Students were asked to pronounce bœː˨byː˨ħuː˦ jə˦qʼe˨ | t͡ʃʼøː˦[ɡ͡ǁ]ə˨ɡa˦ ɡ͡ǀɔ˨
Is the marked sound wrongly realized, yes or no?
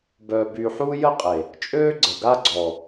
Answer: yes